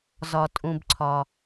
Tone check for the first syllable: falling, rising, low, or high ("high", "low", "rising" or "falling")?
low